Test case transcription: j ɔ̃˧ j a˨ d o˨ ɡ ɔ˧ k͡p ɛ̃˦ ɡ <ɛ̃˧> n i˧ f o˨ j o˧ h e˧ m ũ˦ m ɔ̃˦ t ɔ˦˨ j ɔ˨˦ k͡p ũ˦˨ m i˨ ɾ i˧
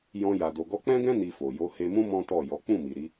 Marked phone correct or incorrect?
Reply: incorrect